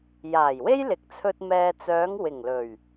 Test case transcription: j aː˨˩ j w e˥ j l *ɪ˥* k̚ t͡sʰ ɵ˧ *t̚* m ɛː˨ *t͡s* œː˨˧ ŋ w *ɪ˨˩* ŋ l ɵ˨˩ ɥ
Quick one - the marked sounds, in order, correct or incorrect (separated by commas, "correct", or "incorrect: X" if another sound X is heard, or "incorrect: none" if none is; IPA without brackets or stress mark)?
incorrect: ɪ˨, correct, correct, correct